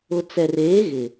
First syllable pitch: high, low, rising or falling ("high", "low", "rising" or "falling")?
low